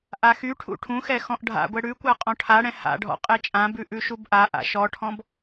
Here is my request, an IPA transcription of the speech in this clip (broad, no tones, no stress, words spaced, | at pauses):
ʔaxyʈʰṵ ʈʰũxɛ xɔ̃ʔɖʱa̰ɡʷɛ ɽʉkʷa qʼɔ̃ʈʰaɽɛ̃ ha̰ɖʱɔ̰ qʼɛt͡ʃʼãbʉ ʔʉʃubʔaʔa̰ ʃɔʈʰɔ̃b